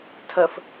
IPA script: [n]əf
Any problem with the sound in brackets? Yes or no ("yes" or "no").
yes